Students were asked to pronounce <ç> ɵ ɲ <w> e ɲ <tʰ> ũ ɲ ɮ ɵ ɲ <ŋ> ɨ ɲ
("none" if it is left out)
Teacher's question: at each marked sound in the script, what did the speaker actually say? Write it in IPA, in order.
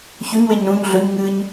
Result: ç, w, ɾ, ŋ

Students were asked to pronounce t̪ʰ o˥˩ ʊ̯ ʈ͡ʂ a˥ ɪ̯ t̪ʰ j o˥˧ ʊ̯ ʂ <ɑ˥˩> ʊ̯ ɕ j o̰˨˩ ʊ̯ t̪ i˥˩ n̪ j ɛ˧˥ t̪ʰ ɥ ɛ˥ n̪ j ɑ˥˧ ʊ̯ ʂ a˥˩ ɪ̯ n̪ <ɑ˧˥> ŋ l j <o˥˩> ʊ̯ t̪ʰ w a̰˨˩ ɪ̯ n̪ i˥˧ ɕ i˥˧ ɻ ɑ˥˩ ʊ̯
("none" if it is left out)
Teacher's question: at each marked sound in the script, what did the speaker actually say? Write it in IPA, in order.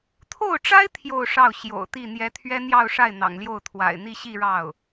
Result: ɑ˥˩, ɑ̰˨˩, o˥˩

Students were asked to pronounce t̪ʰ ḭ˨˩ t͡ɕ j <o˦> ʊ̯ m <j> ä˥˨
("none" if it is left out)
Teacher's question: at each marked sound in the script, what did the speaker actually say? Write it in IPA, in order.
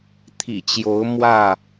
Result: o˨˦, w

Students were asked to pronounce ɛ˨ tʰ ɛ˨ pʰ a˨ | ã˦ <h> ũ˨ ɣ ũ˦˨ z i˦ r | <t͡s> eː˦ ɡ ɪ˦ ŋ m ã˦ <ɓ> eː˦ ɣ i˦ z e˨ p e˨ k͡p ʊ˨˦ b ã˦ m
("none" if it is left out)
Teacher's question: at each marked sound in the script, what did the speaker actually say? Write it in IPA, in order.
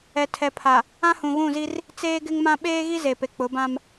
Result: h, t͡s, ɓ

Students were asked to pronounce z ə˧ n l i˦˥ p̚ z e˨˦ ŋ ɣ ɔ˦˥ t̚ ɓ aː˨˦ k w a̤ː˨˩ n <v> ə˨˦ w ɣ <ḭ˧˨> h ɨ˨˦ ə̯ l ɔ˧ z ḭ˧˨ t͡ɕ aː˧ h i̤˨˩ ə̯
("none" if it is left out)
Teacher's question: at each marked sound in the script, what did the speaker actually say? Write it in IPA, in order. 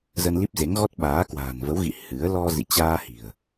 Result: v, ḭ˧˨

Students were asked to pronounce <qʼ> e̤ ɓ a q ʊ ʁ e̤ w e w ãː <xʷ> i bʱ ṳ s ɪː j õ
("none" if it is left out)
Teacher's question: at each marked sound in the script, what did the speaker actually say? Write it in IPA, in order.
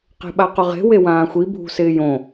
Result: q, xʷ

